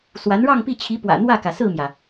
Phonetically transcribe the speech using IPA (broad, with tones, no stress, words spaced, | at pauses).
swa˧˥nɻɑ˥˧ŋpi˥˩t͡ɕʰi˧˥ pwä̰˨˩n̪wä˥˩kä˩ sɹ̩˥˩mjä˩